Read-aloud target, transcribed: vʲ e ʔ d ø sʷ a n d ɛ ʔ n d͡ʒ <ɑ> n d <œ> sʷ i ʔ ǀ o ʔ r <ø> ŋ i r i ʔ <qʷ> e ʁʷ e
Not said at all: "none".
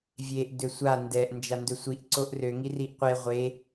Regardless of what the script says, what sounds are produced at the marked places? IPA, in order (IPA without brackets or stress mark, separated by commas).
a, ɵ, ø, qʷ